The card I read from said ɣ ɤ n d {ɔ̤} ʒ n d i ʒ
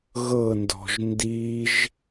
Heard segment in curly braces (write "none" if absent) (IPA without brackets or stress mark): ɔ̤